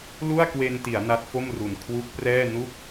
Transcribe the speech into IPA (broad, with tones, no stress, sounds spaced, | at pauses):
l u˥˩ a̯ k w e˧ n t i˩˦ a̯ n a˦˥ t̚ f o˥˩ m r u˨˩ n kʰ w u˦˥ k̚ p r ɛː˥˩ n u˥˩ k̚